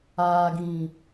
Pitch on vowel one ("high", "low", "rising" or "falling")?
low